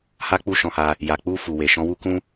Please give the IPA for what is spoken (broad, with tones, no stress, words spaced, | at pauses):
ha˦k͡pu˦˨ ʃɔ̃˧ha˧ | ja˨k͡pu˧ fu˨we˨ ʃɔ̃˨˦wu˦kũ˦